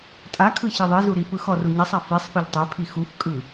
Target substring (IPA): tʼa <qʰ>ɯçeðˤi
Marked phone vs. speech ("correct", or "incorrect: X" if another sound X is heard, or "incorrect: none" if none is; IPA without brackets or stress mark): incorrect: kʰ